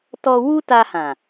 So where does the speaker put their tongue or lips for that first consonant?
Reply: tongue tip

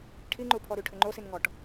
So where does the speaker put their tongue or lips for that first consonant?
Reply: retroflex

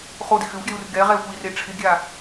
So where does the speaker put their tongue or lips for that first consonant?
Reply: uvula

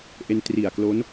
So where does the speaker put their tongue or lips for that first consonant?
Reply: throat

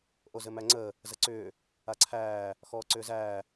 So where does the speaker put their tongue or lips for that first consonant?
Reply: throat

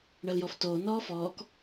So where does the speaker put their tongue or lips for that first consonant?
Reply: retroflex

